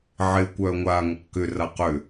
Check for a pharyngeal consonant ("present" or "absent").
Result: present